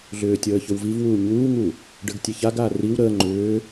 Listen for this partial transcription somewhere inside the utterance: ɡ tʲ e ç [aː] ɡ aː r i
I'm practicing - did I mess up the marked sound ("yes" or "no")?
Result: yes